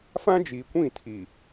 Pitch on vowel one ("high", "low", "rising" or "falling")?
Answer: high